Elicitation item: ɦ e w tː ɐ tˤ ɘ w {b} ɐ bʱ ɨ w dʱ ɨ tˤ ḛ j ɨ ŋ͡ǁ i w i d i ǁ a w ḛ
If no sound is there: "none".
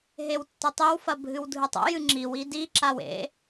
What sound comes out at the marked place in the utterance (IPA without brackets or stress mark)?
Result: f